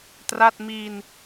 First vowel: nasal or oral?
oral